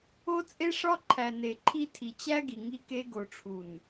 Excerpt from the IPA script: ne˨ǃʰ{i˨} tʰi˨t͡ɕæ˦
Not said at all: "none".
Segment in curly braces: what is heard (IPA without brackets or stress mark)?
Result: i˦